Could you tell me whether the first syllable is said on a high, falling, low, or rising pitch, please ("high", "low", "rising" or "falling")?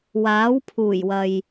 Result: rising